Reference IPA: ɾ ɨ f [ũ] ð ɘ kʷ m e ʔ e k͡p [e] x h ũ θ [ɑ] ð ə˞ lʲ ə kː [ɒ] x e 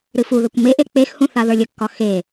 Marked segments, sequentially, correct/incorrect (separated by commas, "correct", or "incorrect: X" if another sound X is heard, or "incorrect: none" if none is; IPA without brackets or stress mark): incorrect: u, correct, incorrect: a, correct